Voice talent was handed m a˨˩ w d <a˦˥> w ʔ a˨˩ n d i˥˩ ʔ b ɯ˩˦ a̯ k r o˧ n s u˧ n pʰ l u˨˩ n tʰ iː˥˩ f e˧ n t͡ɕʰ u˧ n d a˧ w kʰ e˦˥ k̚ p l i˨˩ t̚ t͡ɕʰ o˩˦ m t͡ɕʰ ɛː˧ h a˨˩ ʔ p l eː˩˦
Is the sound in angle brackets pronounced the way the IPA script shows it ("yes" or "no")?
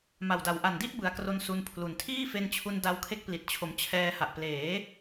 no